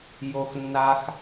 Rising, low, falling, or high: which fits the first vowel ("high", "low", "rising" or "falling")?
low